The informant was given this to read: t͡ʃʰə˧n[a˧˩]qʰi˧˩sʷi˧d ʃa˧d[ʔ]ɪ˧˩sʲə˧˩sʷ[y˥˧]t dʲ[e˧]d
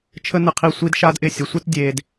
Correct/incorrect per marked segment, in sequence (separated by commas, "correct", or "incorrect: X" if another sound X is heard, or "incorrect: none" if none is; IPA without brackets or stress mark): incorrect: ə˧˩, correct, incorrect: ɪ˥˧, correct